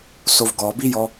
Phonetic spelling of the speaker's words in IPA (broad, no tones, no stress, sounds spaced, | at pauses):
s o v ɡ ɔ b i j ɔ